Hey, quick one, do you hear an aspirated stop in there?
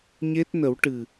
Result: no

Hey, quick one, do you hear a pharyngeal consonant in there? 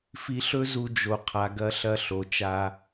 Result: no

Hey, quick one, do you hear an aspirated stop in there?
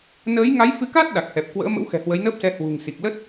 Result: no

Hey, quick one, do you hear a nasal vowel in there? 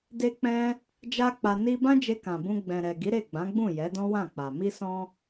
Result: yes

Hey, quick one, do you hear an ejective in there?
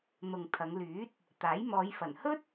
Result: no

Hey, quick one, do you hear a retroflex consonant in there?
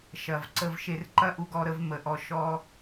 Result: no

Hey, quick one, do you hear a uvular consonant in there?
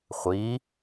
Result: yes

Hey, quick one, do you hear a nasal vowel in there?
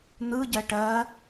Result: no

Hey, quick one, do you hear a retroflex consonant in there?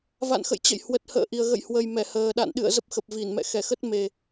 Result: no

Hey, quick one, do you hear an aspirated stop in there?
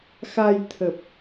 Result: yes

